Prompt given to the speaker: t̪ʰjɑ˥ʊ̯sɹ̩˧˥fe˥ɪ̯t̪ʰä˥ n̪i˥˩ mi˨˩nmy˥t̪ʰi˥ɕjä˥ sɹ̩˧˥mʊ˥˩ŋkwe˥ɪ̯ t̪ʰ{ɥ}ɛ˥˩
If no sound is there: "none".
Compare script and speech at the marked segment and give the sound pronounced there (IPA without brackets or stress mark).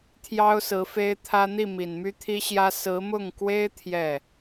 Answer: j